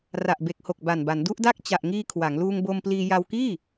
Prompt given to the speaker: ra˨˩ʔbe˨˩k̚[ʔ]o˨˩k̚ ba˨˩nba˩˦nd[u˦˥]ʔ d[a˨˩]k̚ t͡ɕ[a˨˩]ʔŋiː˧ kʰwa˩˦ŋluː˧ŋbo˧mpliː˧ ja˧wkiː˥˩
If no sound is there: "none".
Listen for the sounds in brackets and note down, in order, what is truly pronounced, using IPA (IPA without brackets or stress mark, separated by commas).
h, u˦˥, a˦˥, a˨˩